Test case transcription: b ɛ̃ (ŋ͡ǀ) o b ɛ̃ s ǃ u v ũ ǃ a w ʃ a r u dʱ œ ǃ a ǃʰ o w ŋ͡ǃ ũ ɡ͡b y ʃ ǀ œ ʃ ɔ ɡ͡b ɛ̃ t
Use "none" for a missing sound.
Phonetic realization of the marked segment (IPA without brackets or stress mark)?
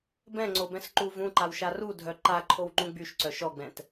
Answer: ŋ͡ǀ